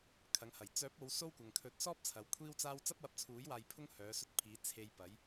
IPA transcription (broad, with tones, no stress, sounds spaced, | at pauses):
kʰ ɐ˨˧ ŋ h ɐ˨˩ j t͡s œː˨˥ p̚ o˨˧ w s o˥ w kʷ ɐ˨ ŋ kʰ ɵ˨˥ t̚ s ɔː˥ p̚ t͡sʰ ɐ˨˧ w kʷʰ iː˥ w t͡s aː˥ w t͡s ɐ˥ p̚ w ɐ˧ p̚ t͡sʰ uː˨˥ j w aː˧ j pʰ ʊ˥ ŋ h œː˨˧ s ɵ˧ t̚ pʰ iː˨˧ t͡sʰ e˨ j p ɐ˨˧ j